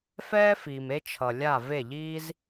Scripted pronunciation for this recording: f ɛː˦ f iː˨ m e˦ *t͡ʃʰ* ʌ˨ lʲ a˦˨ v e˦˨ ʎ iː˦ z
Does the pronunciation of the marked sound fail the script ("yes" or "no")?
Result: no